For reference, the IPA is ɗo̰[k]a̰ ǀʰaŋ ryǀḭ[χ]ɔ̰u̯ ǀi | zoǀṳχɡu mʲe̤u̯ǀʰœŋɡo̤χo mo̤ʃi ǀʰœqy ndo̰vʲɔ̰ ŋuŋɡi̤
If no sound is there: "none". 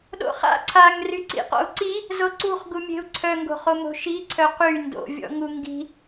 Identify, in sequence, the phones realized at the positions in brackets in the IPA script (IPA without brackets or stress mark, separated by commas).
χ, q